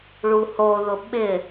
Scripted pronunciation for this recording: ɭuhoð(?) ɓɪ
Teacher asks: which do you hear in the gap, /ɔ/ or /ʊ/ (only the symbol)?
ʊ